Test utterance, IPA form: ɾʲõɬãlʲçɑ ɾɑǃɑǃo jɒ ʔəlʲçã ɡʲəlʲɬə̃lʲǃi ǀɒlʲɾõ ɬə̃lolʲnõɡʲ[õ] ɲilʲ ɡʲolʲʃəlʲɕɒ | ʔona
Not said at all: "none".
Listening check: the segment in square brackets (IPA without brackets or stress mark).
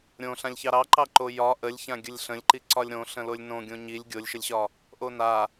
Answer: õ